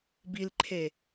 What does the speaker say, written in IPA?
b i l ǃʰ e

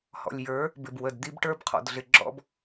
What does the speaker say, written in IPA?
h ɔ̰˨ lʲ j ə˞˨˦ | b ɪ˨ b w ə˨ d d̪ i˦ b ʈ ə˞˦ b qʰ ɔ̰˨ d ɮ ɪ˨ ɡ͡ǁ ɔ̰˦ b

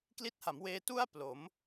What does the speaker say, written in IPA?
k l i˦˥ t̚ h a˩˦ m w eː˧ t u˥˩ a̯ p l o˩˦ m

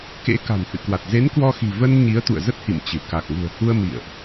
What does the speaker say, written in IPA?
k ḛ˧˥ k a̤˨˩ n h ɨ̰˧˨ k w a˨˩ t̚ z e˨˦ n k w ɔ˧ x i̤˨˩ v ə˧ n ɲ i˨˦ ə̯ t̪ ṵ˧˨ ə̯ z ə˦˥ t̚ h ḭ˧˨ m t͡ɕ ɨ˧˩ k a˨˩ k̚ ŋ ṳ˨˩ ə̯ h u˧ ə̯ m ḭ˧˨ ə̯ ʔ

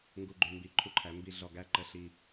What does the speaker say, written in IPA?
ŋ ɡ u˨ ɡ͡ǃ ʉ˨ m b i˨ ǃʰ u˦ ǃʰ æ˨˦ m b i˦ ɮ ɔ˨ ɡ æ˦ ǃ ə˦ ɬ i˦

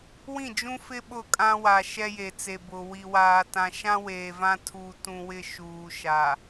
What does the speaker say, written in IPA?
w ĩ˦˨ d͡ʒ ũ˦ f ɪ˦ ɓ ʊ˦˨ kʼ ã˦ w a˨ ʃ ɛ˦ j e˨ t͡s e˨ b ʊ˨ w i˨ w aː˨ t ã˨ ʃ ã˦ w eː˨ v ã˦ tʰ u˨ t ũ˨ w ɪ˦ ʃ uː˨ ʃ a˨

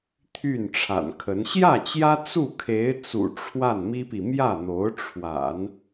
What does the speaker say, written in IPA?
t̪ʰ y˥˩ n ʈ͡ʂʰ a̰˨˩ n kʰ ə˧˥ n ɕ j ä˥˩ t͡ɕ j ä˥ t͡s u˥˩ kʰ e˧˥ ɪ̯ t͡s ṵ˨˩ ʈ͡ʂʰ w a˥˩ n m i˥ p i˨ m j ä˥˩ n̪ o˧˥ ʊ̯ ʈ͡ʂʰ w a̰˨˩˦ n

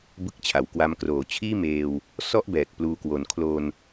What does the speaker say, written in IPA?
b ɯ˦˥ k̚ t͡ɕʰ a˩˦ w k w a˧ m k r oː˩˦ t͡ɕʰ iː˥˩ m eː˧ w | s ɔ˥˩ ʔ b ɛː˨˩ k̚ p l uː˧ k w o˨˩ n kʰ l o˧ n

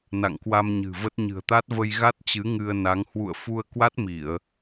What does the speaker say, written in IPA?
n a̰˧˨ ŋ k w a˧ m ɲ ɨ̤˨˩ v ə˦˥ t̚ ɲ ɨ̤˨˩ ə̯ t̪ a˦˥ t̚ v ə˧ j ɣ a˦˥ t̚ t͡ɕ ɨ˨˦ ŋ ɨ˧ ə̯ n a˨˦ ŋ h w ṵ˧˨ ə̯ f u˧ ə̯ k w a˦˥ t̚ m i˧˩˨ ə̯

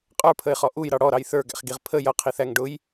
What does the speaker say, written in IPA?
qʼ ə˞ pʰ ə ɪ̯ χ ɔ ʔ u j ɾ ɑ ɽ ɔ ɾ ɑ j θ ə˞ ɡ æ̰ χ ɡ i ʁ pʰ ə j ʌ qʰ i θ æ ŋ ɖ ʊ j

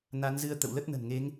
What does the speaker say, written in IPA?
n a˨˦ n z ɨ˧ ə̯ t̪ ə̰˧˨ w l ə˦˥ t̚ n ə̤˨˩ n ŋ e˨˦ ŋ

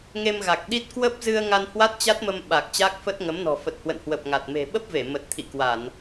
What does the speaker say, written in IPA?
ŋ e˧ m ɣ a˨˩ k̚ ɗ i˦˥ t̚ k w ə˦˥ p̚ z ɨ˧ ə̯ ŋ a˧ n h w a˦˥ t̚ t͡ɕ a˦˥ t̚ m ə˧ m ɓ a˨˩ k̚ t͡ɕ aː˦˥ k̚ f ə˦˥ t̚ ŋ ə˨˦ m n ɔ̤˨˩ f ə˨˩ t̚ h w ə̰˧˨ n h w ə˨˩ p̚ ŋ a˨˩ t̚ m e̤˨˩ ɓ ə˦˥ p̚ v e˧˩ m ə˨˩ t̚ t̪ʰ ḭ˧˨ k w a˧˩˨ n

